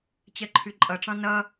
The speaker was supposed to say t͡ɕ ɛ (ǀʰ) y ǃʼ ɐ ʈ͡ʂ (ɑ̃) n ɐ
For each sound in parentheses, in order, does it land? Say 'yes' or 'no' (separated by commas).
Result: no, yes